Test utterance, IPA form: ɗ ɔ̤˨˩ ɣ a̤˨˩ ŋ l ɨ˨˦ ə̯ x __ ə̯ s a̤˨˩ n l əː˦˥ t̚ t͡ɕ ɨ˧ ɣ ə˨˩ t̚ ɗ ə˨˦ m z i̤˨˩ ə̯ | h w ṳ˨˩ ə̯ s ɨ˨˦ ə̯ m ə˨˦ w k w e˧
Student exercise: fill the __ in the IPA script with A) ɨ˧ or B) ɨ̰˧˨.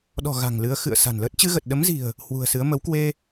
B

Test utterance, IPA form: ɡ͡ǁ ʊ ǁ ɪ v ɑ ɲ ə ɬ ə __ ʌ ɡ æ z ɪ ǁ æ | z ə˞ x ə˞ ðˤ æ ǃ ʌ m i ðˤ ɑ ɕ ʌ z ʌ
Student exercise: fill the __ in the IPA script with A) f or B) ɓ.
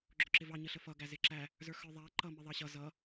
A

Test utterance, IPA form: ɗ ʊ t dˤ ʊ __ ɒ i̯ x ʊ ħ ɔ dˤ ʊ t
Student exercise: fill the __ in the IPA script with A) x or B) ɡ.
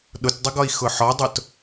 B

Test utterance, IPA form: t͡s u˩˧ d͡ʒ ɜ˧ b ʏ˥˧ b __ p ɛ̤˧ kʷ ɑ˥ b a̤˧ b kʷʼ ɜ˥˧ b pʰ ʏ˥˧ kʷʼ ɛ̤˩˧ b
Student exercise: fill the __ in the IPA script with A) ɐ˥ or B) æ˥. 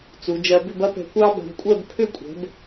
A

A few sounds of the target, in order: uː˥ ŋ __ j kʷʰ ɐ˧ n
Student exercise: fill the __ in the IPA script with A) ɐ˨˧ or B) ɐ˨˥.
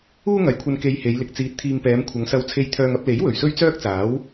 A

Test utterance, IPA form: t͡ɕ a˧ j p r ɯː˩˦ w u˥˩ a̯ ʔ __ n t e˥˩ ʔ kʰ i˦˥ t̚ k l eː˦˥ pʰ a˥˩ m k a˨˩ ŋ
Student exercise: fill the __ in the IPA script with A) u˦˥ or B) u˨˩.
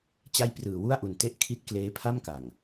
B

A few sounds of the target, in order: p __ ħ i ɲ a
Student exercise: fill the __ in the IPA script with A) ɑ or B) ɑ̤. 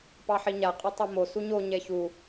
A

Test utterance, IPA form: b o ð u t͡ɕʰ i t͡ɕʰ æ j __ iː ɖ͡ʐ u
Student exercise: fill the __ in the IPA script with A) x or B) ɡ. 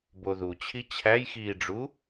A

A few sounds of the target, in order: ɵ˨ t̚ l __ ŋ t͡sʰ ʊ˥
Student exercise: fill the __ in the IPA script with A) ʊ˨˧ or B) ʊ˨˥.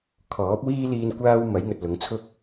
A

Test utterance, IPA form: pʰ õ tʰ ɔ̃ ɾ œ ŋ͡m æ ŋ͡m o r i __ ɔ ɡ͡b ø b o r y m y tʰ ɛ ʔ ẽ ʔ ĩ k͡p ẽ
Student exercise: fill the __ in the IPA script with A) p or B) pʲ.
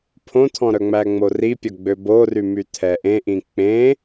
B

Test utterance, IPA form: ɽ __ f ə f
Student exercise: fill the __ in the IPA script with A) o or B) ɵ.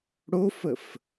A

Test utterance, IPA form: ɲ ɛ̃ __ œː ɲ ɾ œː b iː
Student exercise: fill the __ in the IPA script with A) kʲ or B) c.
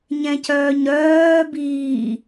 B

